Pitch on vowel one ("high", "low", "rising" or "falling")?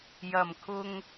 low